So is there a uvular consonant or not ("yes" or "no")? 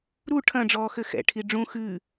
no